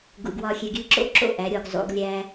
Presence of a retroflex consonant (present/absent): absent